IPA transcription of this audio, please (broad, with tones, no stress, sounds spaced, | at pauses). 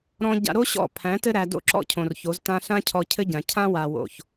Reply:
ɾ ɔ̃˦ ɟ a̰˧ ɾ o˦ ɕ ɔ̰˦˨ pʰ æ̃˨˦ t ɘ˦ ɾ æ˧ d o̰˦ ǁ ɔ̰˦ cʰ õ˨ r ç o˨˦ z t ã˧ ɬ ã˦ cʰ ɔ˧ cʰ ɘ˦ ɟ ã˨ cʰ ã˦ w a˨ w o̰˨ ç